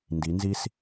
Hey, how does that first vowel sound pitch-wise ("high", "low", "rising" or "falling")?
rising